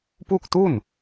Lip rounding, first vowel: rounded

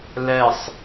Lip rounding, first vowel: unrounded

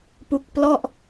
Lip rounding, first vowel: rounded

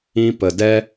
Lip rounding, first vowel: unrounded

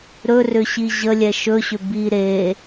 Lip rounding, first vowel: rounded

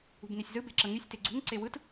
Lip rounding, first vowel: rounded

